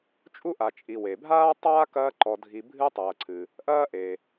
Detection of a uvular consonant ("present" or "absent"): absent